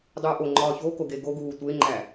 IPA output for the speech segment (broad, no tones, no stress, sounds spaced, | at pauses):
dˤ uː ʔ o ŋ͡ǃ ɒː ç o k o ɡ e ɡ o ɡ uː tʷ e ŋ͡ǃ æ